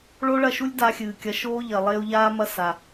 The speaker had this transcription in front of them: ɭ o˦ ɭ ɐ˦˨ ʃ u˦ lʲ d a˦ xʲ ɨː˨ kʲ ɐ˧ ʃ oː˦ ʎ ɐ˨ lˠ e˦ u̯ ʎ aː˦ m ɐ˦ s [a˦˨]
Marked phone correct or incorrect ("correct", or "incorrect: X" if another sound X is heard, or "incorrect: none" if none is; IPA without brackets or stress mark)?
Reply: incorrect: a˨